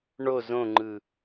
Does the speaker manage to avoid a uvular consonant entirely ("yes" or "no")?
yes